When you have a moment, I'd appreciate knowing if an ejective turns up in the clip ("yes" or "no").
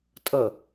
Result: yes